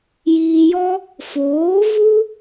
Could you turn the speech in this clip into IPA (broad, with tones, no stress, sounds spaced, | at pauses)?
j iː˧ j ɔ˦ | f oː˨˦ v u˦